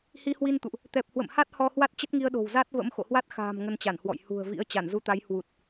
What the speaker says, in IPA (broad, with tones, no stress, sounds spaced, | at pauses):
h i˧ h w i˧ n t̪ ṵ˧˨ ʔ | t̪ ɛ˨˩ p̚ h w ə̰˧˨ m h a˦˥ t̚ h ɔ˧ h w a˦˥ t̚ t͡ɕ ə˦˥ t̚ ŋ i˧ ə̯ ɗ o̤˨˩ w z a˦˥ t̚ v ə̰˧˥ m x o̰˧˨ h w a˦˥ t̚ x a̤ː˨˩ m ŋ ə˧ n t͡ɕ a˧˩ n h w ɔ̰˧˨ j h ṳ˨˩ ə̯ v ḭ˧˥ ə̯ t͡ɕ a˧˩ n z u˧ t̪ a˨˦ j h w u˨˩ t̚